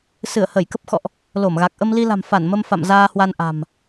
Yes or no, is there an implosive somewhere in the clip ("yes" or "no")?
no